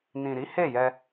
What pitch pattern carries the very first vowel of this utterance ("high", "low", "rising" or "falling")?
low